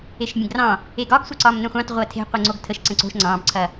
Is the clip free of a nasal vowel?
no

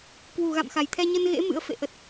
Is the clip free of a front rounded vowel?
yes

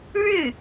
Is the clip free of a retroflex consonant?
no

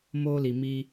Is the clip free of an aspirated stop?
yes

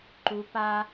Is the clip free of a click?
no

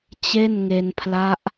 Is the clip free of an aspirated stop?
no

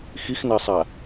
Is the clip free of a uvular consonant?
yes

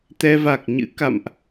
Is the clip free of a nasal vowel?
yes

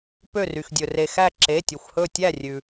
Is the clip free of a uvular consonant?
yes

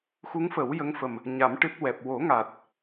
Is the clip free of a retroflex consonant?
no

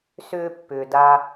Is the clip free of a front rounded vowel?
no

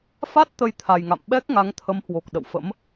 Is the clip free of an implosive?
no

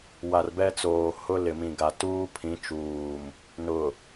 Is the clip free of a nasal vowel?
no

